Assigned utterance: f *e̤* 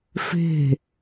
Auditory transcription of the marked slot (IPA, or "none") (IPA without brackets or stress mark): e̤